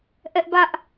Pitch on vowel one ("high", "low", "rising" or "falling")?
high